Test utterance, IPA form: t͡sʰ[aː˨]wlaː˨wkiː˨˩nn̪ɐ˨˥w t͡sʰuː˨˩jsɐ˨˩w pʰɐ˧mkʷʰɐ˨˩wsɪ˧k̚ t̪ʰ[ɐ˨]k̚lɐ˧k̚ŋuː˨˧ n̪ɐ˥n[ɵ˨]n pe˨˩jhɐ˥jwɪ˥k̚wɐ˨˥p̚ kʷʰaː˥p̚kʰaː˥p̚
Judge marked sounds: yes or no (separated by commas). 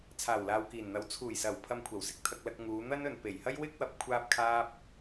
no, no, yes